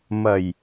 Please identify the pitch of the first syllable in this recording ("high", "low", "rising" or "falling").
low